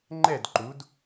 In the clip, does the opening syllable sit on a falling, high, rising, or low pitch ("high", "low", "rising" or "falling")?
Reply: falling